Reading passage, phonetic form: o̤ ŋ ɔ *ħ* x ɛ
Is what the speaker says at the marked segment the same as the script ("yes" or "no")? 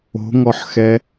yes